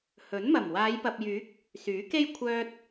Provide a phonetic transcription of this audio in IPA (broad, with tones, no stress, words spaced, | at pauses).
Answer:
hɵ˨˥n mɐ˨˩m waː˨˧jpɐ˨p̚jyː˨˥k̚ | syː˨˥ke˥j kʷʰœː˧t̚